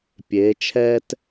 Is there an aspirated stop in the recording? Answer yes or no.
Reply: yes